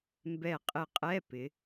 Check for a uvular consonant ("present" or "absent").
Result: present